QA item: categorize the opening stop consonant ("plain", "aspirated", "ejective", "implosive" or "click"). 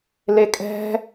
ejective